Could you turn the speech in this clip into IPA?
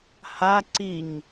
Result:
ha ǀiɲ

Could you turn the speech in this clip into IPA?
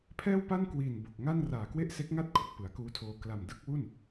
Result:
pʰɛː˥˩wpa˥˩nkwiː˨˩n bo˨˩k̚ŋa˥˩n raː˨˩kwe˥˩ʔse˦˥k̚ŋa˥˩t̚ kʰu˨˩k̚pɯ˩˦a̯kuː˦˥tʰoː˧ kla˨˩mdɯ˥˩k̚wu˥˩n

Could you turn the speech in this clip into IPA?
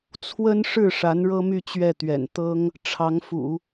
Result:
t͡sʰwə˥n ʂɻ̩˥˩ ʂa˧˥nɻɤ˥my˥˧ t͡ɕɥɛ˥˩t̪ɥɛ̰˨˩n t̪ɤ˥ŋ | ʈ͡ʂʰɑ˧˥ŋfṵ˨˩˦

